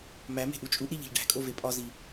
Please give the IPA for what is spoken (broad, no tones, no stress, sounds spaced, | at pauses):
m æ m e̤ ʔ u t͡ʃʼ u ʔ ɾ i ʎ e̤ ʎ ɖ æ̤ kʼ o v e pʼ ɒ z i